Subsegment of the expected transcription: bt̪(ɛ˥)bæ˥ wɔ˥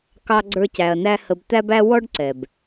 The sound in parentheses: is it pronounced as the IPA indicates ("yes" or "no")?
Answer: no